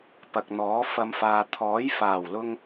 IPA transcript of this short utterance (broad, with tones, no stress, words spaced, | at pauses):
pɐ˨k̚n̪ɔː˨˥ fɐ˧mfaː˨ t̪ʰɔː˨˥j faː˨˩wlʊ˧ŋ